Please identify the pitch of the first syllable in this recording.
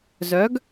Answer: rising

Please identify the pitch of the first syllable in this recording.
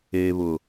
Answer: low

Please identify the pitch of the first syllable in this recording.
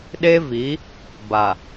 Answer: high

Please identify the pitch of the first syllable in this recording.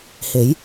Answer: rising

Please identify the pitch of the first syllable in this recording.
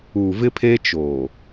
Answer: low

